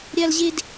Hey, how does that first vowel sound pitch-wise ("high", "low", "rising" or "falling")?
high